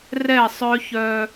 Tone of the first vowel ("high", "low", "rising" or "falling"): falling